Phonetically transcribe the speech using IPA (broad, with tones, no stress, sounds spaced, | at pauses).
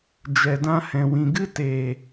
d͡ʒ ɛ˨ d ã˧ h ɛ̃˨ w ĩ˨ ɡ ɨ˦ t e˨